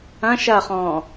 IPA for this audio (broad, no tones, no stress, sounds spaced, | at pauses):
ɐ̃ ʃ ɐ χ ɔ̃ː